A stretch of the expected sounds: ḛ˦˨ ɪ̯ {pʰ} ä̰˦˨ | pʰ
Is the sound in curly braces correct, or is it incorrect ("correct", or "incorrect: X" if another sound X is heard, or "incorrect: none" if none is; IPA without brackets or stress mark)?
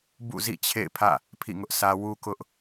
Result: correct